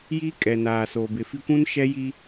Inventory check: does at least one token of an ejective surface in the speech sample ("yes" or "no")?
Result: yes